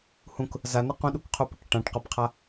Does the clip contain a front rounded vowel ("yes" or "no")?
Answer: no